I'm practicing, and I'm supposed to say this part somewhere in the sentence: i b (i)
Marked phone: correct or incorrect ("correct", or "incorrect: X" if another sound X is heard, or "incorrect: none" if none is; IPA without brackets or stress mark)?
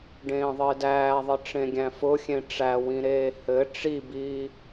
incorrect: iː